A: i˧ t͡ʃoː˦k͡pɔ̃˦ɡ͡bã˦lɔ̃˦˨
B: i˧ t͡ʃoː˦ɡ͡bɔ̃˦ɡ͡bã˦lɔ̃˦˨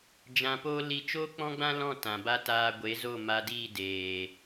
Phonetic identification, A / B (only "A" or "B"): A